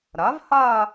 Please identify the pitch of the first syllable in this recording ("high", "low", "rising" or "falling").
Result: rising